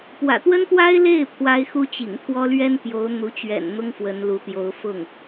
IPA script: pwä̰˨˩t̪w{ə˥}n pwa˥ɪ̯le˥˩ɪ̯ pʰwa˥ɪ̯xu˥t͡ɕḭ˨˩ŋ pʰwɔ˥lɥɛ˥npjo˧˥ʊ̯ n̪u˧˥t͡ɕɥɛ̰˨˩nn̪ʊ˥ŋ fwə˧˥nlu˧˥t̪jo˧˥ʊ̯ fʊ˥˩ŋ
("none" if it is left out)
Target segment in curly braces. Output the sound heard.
ə˥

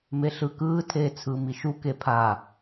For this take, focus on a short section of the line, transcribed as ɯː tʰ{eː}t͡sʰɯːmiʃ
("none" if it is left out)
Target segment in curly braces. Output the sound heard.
eː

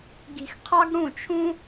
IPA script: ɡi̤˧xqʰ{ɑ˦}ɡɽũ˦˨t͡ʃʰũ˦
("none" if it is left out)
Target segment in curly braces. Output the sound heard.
ɑ˦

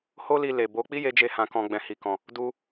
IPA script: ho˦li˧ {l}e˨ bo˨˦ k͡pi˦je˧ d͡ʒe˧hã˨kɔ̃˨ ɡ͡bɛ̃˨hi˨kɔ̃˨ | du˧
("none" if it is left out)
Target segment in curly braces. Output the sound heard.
l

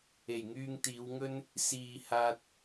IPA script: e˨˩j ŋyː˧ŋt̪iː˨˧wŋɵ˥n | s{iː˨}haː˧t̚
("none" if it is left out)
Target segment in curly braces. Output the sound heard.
iː˨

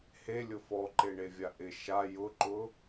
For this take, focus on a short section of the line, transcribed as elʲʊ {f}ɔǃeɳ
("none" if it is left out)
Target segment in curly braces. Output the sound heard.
f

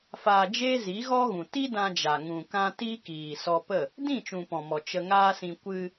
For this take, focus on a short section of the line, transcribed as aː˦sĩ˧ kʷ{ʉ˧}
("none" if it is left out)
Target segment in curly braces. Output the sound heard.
ɨ˧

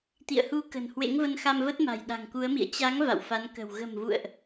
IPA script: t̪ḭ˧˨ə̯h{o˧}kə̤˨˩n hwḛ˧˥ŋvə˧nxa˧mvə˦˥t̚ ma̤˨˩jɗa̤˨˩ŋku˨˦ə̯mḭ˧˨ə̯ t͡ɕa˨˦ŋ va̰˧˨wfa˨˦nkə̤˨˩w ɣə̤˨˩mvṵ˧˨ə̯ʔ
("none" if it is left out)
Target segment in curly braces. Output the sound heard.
u˧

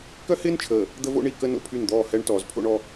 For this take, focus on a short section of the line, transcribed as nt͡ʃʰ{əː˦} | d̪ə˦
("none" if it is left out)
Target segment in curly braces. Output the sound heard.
əː˨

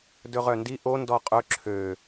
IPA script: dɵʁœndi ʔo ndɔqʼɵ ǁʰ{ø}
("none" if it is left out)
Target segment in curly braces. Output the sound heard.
ø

